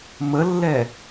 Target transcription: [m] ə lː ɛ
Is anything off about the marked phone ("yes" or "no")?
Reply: no